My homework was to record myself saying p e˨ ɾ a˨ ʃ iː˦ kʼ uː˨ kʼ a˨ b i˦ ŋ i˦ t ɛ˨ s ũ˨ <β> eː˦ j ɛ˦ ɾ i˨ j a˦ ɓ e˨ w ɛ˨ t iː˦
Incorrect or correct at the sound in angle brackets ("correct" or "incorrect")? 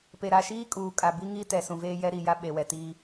incorrect